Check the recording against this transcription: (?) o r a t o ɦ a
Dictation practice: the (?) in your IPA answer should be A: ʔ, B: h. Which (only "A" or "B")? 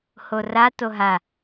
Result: B